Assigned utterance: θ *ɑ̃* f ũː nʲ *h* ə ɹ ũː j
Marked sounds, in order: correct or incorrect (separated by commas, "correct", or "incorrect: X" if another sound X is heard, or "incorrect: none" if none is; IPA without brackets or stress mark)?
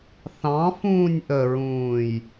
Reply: correct, incorrect: ʔ